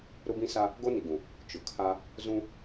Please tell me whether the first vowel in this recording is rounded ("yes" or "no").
yes